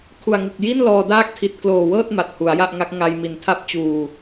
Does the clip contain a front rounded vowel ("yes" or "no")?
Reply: no